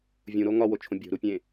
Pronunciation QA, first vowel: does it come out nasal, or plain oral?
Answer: nasal